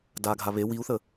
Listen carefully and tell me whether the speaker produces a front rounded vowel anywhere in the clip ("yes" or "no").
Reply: no